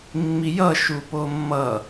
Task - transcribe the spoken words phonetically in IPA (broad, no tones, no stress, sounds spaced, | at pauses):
mː i j ʌ ʃ u p o mː ʌ